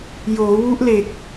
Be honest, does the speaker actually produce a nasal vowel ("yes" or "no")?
no